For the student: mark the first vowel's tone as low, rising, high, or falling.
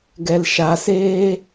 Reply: low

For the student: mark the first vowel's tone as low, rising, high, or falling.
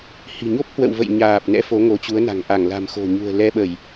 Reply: low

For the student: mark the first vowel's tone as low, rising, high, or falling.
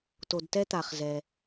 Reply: low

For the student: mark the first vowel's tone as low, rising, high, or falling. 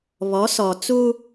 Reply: rising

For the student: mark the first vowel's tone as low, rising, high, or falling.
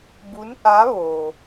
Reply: rising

